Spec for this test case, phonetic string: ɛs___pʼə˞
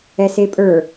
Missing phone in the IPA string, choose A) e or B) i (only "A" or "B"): A